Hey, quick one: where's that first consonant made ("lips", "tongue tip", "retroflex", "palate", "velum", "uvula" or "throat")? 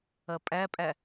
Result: lips